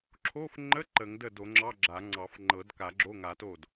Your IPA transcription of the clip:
ǁʰ o˧˥˧ f ŋ͡ǃ ə˧˥˧ ǃ ə˨˩˦ ŋ d ə˥˩ d o˨˩˦ ŋ͡ǁ ɑ˧˥˧ ɡ͡ǁ a˨˩˦ ŋ͡ǀ ɑ˨˩˦ f ŋ͡ǃ ɤ˨˩˦ d k a˨˩˦ ɡ͡ǁ o˧˥˧ ŋ a˨˩˦ t o˥˩ d

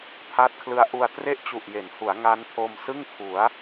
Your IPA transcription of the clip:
pʰ a˦˥ t̚ kʰ l ɯ˦˥ a̯ ʔ u˧ a̯ t r e˥˩ ʔ t͡ɕ u˨˩ ʔ j e˩˦ n h u˩˦ a̯ ŋ a˦˥ n pʰ o˧ m s ɯ˥˩ ŋ kʰ u˩˦ a̯

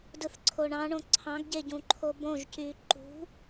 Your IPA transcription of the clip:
d ɯ θ ǀʰ o ɳ ɑ̃ ɳ õ ǀʰ ɑ̃ ɡ ɟ e ɟ ũ ǃʰ o b õ ʒ c yː ǃ ṳ

